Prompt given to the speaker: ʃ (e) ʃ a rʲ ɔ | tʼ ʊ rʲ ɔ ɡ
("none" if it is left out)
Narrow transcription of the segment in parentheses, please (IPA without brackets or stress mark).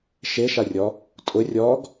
e